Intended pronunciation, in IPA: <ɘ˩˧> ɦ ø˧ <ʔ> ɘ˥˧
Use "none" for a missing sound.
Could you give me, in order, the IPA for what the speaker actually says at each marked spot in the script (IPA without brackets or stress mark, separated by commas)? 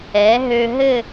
ɛ˩˧, ɦ